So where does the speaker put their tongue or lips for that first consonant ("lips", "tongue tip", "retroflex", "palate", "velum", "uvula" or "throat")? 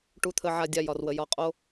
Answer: retroflex